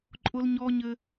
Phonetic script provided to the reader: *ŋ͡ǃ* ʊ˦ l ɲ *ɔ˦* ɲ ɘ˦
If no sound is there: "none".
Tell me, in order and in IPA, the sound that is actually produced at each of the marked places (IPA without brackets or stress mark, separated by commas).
ǃʼ, ɔ˦